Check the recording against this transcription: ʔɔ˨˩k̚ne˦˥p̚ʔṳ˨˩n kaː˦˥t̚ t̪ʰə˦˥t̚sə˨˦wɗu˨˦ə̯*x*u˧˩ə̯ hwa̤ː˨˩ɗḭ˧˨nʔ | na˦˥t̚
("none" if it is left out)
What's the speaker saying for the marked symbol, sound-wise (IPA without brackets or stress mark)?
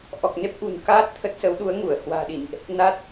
ŋ